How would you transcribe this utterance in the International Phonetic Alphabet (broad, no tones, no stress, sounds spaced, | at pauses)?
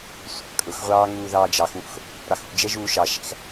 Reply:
sʷ ɑ̰ kʼ ʊ x ʁʷ ɑː ŋ uː ð ɑː d͡ʒ ɑ x w ṵ x | ɾ ɑ x ṵ d͡ʒ ɛ ʒ uː ʃ ɑ ʃ æ̰ x